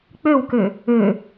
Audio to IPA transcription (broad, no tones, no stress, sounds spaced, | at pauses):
k͡p ø w k ø | ø